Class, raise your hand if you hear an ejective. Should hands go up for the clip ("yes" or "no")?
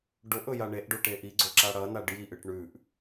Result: no